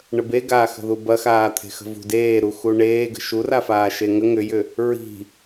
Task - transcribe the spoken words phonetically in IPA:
ɳ ə b e ɡ aː x ə̤ ð u b ɐ x aː t̪ʰ e̤ x ə̤ v ṳ d eː ɾ u x u ɳ eː ɡ ə̤ ʃ u r a f aː ʃ e ŋ ə ŋ ʏ j ʏ | ɹ i̤

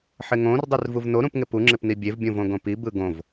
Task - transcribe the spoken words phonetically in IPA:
ħ ɪ ŋ õ r dˤ y r v u v n o ɾ ũ p ŋ ɪ p u ŋ͡ǁ ɪ p n i bʲ e v bʲ õ v õ ɡ õ p i b ɯ ɡ õ v

